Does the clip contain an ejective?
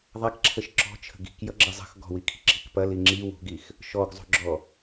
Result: no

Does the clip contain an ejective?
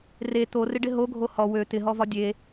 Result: no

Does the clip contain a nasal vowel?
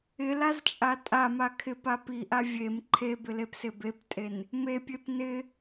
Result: no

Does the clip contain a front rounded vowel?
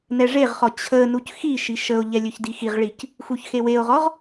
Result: yes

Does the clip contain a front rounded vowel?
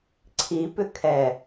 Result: yes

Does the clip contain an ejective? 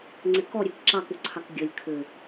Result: no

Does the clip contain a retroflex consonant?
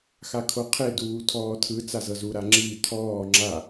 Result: no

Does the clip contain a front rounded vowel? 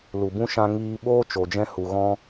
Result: no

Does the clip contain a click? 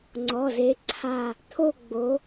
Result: yes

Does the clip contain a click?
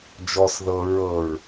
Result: no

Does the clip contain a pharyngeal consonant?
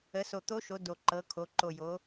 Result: no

